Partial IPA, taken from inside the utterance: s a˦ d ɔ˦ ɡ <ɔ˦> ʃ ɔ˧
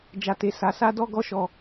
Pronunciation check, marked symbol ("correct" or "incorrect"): correct